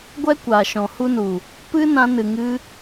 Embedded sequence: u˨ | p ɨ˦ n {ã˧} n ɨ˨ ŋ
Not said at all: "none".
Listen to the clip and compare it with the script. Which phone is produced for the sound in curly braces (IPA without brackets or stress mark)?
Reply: ã˧